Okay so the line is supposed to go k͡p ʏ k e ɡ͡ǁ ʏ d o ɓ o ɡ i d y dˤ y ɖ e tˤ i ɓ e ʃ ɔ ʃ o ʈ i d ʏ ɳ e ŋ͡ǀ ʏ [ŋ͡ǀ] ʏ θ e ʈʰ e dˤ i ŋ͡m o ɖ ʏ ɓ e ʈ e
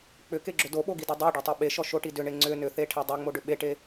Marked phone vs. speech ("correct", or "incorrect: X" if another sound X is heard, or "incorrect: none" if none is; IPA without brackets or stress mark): incorrect: n